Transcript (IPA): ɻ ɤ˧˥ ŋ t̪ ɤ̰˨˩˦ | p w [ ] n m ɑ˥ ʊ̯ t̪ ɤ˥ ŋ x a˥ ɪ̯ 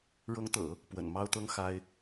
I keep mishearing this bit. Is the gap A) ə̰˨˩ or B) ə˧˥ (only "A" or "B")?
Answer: A